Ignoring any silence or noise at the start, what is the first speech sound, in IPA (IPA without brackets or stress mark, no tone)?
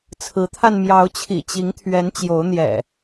t͡sʰ